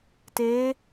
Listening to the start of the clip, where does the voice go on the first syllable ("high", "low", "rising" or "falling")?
rising